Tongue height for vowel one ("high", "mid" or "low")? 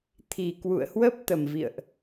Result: high